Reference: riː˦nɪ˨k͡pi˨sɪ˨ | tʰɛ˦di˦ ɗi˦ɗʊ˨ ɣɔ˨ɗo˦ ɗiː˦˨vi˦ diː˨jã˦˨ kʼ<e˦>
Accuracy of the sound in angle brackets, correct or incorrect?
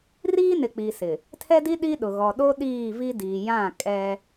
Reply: incorrect